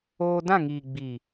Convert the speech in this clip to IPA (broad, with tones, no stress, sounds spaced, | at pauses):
oː˧ d ã˦˨ ŋ iː˨ ɡ͡b iː˨